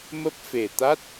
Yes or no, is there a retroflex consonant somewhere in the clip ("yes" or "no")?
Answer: no